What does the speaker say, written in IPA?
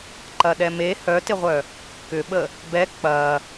ǃ ɐ ɗ ɛ m e h œ t ɪ ʁʷ œ | k ʏ ɓ ə | b ɛ k͡p ɐ

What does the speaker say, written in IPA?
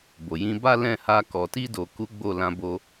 b o˨ j ĩ˧ b a˦ l ɛ̃˦˨ h a˧ k ɔ˨ t i˧ d o˨ k u˨˦ ɡ͡b o˦˨ l ã˧ b o˧

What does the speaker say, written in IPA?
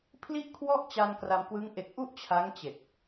pʰ l i˥˩ ʔ kʰ w ɔ˥˩ ʔ t͡ɕ a˧ n k r a˧ m k w ɯ˦˥ ŋ ʔ e˨˩ k̚ ʔ u˥˩ ʔ t͡ɕʰ a˦˥ ŋ t͡ɕ e˨˩ k̚

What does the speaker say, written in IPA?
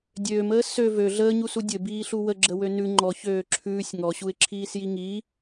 dʲ øː m əː s ø v ø ɮ əː ɲ u s u dʲ ɘ b iː ɬ u w ə ɡ͡ǁ ə w ø n ʉ ŋ͡ǃ ɔ ç øː ǁʰ ʉː sʲ ŋ ɔ ɕ u ɪ̯ ǁʰ iː s j i ŋ iː

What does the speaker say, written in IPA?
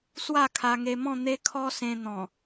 s w a˥˧ kʰ a˧ ŋ e˧ m ɔ̃˥˧ n̪ e˦ kʰ ɔ˦ s ẽ˧ n̪ ɔ̃˨˩

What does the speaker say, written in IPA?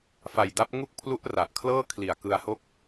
f a˨˩ j d a˦˥ p̚ ŋ u˥˩ k̚ pʰ l u˦˥ ʔ r a˨˩ ʔ kʰ l ɤː˥˩ kʰ l i˨˩ a̯ k ɯ˧ a̯ h o˥˩ k̚

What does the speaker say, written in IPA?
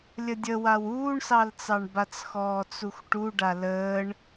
lʲ ə dʲ ə w a w uː ɳ s ɑ l t͡s ɑ ɳ b a t͡s x ɔː t͡s u x ʈ u ɖ a l əː ɳ

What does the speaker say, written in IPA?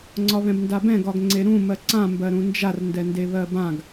ŋ͡ǀ ɒ β ɛ̃ b n d a b ɛ̃ ɡ ɒ ɡ ŋ͡ǀ e ɾ ũ m ɜ ǀ ã m b ɜ ɾ ũ n d͡ʒ a r n d ɛ n d e β ɜ b ã ɡ

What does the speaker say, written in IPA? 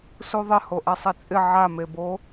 s u ðˤ ɪ h o ʔ ɛ sˤ i t͡sʼ ɪ ʕ a m e b o

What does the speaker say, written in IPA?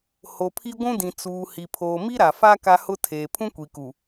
h o˨ pʰ i˦ ɡʷ ũ˦ d ĩ˨ t͡s uː˨ h i˨ pʰ oː˨ m i˦ ɾ a˨ f a˦ k a˦ h ʊ˦ tʰ eː˨ pʰ ũ˦ kʷ i˨ k u˨

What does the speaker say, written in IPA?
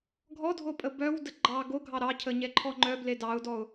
ɡʱ ɔ dʱ o pʼ ə b œ w d ə ɡ͡ǃ ɑ ɡ o ɡʱ ɑ ɾ ɑ cʰ ə ɲ ɛ ǃʰ ɔ ŋ͡ǃ œ b l e d ɑ ʊ̯ d ɔ ʊ̯

